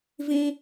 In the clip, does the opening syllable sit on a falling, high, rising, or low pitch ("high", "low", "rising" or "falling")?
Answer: high